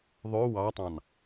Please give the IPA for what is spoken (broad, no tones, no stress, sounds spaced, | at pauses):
ðˤ ø w ɑ tˤ ɑ̃ n